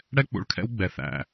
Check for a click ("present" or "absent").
absent